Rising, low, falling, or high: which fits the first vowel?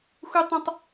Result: high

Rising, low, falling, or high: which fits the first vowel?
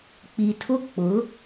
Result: low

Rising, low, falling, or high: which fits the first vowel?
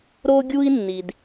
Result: high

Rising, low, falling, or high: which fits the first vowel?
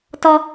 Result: high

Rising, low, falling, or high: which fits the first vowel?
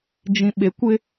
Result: low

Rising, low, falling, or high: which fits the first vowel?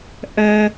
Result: high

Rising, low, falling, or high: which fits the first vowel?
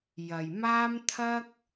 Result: low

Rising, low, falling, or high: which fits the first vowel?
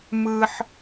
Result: high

